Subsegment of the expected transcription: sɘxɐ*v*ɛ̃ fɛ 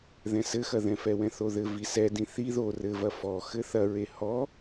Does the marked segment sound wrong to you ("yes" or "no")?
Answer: yes